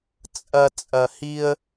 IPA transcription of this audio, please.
t͡sʼɐ˨ t͡sʼɐ˨hi˦ə̯

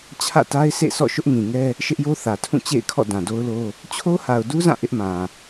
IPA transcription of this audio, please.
t͡ɕʰä̰˦˨ta˦ɪ̯sʰḛ˦˨sʰɔ̰˦˨ ʃʊ˦ʔŋĩ˨ŋɛ˦ | ʃɪ˦ʔjo˦θä˨tʰũ˦˨ t͡ɕḛ˦˨ɪ̯kʰɔ̰˦˨ dã˨do˦ʊ̯lo˦ | t͡ɕʰo˦ha˨ʊ̯du˦zã˦˨ ʔɪ˦ʔmã˨

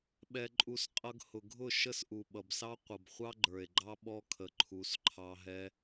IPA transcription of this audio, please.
ɓɛ˧ǃʼu˧s qʼʌ˧ɡhʊ˨ɡʱʊ˦˨ ʃə˦sʔu˨ɓʌ˨bsɑ˦ qʷʌ˨bχʷɑ˦ɡ͡ǃə˞˨e̯ɡ͡ǃɑ˦ ɓɔ˦ kʰə˨ǃʰu˨˦s ǃʰɑ˧ɦɛ˦

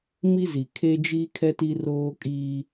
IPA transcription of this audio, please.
mi˦zi˨kʰe˦d͡ʒiː˦ kʰɛ˦ti˦ roː˦kʼiː˦

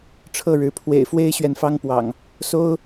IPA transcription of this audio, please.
ʈ͡ʂʰɤ˥˨ɻɻ̩˨˦ pʰwḛ˨˩ɪ̯fwe˦ɪ̯ɕɥɛ˨n fɑ˦ŋpwɑ̰˨˩ŋ | so˦ʊ̯

